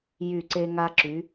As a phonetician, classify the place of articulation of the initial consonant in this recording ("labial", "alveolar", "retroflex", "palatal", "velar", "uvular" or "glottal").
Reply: palatal